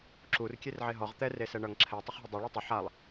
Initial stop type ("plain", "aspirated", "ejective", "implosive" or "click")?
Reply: click